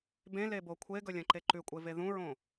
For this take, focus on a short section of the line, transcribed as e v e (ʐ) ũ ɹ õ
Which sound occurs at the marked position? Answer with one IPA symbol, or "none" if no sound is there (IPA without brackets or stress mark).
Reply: ð